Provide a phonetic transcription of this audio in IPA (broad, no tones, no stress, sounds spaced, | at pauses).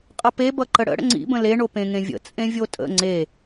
qʼ ʌ p e b ʌ ǃ ə ɽ ə̰ ɽ ə̰ ŋ͡ǀ ḭ b ə̃ l e ɳ o p ẽ ŋ ẽ vʲ ə̰ t͡sʼ ẽ vʲ o tʼ ə̰ ŋ͡ǀ e